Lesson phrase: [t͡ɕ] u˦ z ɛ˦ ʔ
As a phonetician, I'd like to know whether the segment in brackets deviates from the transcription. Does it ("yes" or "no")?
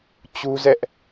no